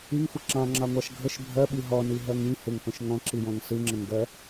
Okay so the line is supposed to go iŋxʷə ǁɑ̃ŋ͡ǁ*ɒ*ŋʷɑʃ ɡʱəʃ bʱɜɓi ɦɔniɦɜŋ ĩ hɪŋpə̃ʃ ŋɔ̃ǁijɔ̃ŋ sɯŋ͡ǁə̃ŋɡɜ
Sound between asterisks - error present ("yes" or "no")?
yes